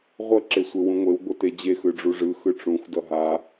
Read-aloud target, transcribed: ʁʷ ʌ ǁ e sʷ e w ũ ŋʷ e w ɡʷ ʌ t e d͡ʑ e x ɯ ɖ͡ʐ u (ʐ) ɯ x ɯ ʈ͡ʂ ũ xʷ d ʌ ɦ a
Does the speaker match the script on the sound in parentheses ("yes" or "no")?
yes